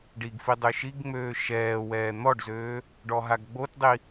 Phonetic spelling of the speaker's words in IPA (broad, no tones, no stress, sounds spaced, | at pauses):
ɖ i ɡ f i dˤ ø ʃ i ɡ ŋ͡m øː ʃ ɛː w ɛː n̪ ɔ ɖ z øː | ɖ ɔ ɦ a ɡ ɡ͡b o t dˤ i